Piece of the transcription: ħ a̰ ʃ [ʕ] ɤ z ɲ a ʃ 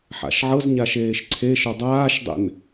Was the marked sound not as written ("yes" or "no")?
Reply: no